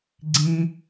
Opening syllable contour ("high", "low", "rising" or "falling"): low